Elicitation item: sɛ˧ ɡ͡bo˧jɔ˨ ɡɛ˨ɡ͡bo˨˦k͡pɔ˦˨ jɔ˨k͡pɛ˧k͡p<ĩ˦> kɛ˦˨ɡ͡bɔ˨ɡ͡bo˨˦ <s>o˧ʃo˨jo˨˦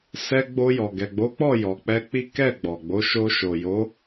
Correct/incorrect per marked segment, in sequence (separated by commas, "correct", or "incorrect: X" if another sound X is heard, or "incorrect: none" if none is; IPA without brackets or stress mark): incorrect: i˦, incorrect: ʃ